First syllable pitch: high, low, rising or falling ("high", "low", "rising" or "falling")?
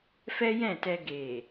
high